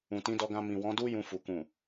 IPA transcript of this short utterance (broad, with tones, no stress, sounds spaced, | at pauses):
ũ˨ t ĩ˨˦ d ɔ˧ ɡ ã˧ m ĩ˨ w ɔ̃˨˦ d u˦ j ũ˧ f u˨ k ũ˨